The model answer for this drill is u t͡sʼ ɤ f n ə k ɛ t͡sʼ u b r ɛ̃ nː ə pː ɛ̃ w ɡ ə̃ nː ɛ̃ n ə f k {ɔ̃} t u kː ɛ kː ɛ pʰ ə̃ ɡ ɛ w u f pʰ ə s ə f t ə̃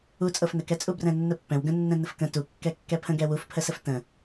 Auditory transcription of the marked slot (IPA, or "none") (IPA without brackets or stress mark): ə̃